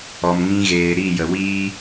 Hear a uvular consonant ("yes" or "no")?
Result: no